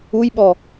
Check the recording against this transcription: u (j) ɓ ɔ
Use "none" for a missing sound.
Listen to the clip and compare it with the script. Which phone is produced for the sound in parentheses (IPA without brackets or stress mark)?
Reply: j